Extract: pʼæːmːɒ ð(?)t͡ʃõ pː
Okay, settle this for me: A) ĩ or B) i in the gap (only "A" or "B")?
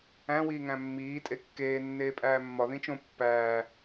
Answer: A